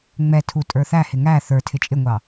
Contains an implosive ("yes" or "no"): no